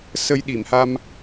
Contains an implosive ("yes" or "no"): yes